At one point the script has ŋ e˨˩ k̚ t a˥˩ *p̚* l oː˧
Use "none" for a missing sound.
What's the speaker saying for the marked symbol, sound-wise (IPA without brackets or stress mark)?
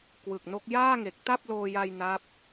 p̚